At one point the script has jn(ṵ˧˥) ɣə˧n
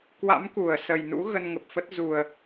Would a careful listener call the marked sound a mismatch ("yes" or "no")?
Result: no